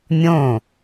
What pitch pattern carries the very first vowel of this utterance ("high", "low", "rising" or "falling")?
falling